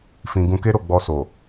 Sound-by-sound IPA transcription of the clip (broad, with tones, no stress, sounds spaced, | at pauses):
f ĩ˧ ɡ ũ˧ k e˦ ɾ o˦˨ ɡ͡b ɔ˧ s o˨